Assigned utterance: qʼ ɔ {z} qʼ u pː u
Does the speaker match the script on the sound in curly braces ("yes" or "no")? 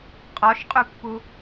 no